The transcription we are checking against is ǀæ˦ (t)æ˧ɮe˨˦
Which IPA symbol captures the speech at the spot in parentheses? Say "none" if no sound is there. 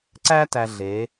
t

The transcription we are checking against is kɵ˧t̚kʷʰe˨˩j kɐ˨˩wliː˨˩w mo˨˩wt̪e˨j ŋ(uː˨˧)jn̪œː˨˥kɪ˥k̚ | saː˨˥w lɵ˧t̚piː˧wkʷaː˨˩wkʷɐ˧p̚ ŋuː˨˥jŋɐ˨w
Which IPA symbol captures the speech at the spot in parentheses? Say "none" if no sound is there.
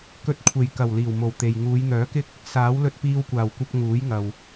uː˨˧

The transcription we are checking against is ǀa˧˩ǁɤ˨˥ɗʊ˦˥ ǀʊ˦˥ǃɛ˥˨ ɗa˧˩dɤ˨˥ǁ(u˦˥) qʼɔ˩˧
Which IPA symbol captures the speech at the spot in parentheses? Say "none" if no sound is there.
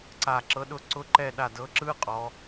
ɯ˦˥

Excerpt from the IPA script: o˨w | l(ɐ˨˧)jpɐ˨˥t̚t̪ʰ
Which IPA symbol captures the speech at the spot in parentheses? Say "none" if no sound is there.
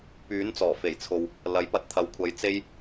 ɐ˨˥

